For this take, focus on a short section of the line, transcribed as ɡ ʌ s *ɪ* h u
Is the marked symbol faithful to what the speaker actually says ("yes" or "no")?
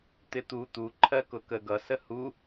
no